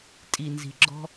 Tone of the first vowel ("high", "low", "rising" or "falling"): low